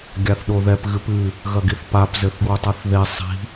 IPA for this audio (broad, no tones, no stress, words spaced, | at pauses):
ɡʲaθɗoðɛp ɣɨpɨ | ɣɐɡiθpap zɘθɡwutˤaθðe sˤi̤